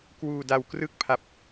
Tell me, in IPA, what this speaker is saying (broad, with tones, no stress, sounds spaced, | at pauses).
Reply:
k w uː˧ d a˧ w k r ɯ˥˩ k̚ pʰ a˦˥ p̚